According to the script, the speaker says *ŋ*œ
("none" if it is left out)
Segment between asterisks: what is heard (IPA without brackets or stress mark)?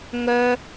ŋ